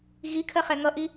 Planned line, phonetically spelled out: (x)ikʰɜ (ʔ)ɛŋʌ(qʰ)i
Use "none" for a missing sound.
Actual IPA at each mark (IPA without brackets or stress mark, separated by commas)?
ɣ, χ, ʔ